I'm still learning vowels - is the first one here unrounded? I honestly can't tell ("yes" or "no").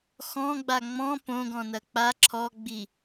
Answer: no